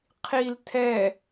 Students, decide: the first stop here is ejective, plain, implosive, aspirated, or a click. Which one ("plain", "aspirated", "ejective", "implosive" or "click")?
aspirated